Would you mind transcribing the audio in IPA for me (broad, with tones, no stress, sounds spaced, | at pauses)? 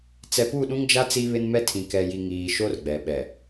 t͡s ɛ˨ p u˦˨ ɗ ũ˦ ŋ d͡ʒ a˦ t͡s i˦ β ɪ˦ n m ɛ˦ tʰ ĩ˨ k ɛ˨ j i˨ ŋ iː˨ ʃ o˦ r ɡ͡b ɛ˨ ɓ ɛ˨